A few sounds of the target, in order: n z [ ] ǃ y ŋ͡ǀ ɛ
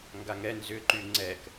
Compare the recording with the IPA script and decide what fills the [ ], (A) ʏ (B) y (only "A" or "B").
A